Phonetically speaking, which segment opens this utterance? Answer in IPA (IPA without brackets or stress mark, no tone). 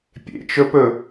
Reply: pʲ